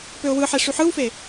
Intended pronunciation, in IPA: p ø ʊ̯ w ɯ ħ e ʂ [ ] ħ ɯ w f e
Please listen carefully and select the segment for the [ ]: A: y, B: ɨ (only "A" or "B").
A